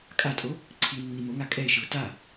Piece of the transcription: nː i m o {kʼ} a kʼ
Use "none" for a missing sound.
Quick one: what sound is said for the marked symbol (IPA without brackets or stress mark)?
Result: ŋ